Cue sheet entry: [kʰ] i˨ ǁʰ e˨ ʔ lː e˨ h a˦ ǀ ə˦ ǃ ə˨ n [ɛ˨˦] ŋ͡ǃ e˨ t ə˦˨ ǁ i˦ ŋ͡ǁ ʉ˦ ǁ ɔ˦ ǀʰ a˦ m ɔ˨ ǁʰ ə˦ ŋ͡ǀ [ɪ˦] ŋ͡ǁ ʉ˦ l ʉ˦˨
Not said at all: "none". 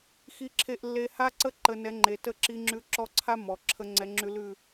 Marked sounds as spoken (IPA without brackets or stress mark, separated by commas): x, ɛ˨˦, ɛ˦